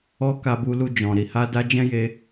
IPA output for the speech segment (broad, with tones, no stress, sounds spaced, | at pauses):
ɔ˦ k a˧ b u˧ l u˧ d͡ʒ ɔ̃˨ ɾ i˨ h a˧ d a˦ d͡ʒ ɛ̃˦ j e˧